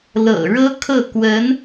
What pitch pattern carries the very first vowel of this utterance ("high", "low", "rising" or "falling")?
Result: low